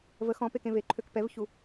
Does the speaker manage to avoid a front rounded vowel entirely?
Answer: no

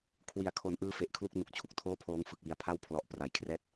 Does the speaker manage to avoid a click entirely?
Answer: yes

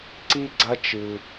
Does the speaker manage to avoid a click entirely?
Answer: no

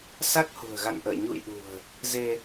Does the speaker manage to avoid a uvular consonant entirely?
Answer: yes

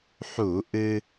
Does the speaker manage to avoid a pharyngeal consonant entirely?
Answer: no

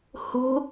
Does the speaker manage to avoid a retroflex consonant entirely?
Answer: yes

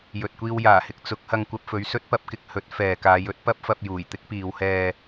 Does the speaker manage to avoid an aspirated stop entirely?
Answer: yes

